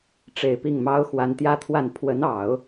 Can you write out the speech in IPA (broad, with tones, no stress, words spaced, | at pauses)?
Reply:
ʈ͡ʂe˨˩ɪ̯pi˥˩ŋmɑ˥ʊ̯ xwa˧˥nt̪jä˥t̪ʰwa˥˩n pʰwə˧˥nɑ˨˩˦ʊ̯